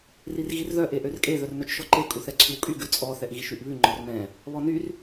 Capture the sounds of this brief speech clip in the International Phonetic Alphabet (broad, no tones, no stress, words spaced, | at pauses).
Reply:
rirɣirðœ ʔeʔørkʼe ðœrnœt͡ʃʃɔǃe kʼuθɛǀʰywkʼy ɡʉt͡sʼɔ θɛʔɣiʃyʔβʉ ŋ͡ǃɔrmɛ̃ | βɔnyr